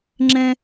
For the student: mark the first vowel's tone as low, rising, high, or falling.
high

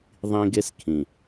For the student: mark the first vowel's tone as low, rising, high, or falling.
high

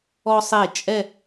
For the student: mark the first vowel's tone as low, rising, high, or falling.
high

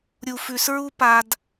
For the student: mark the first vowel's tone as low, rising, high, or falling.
low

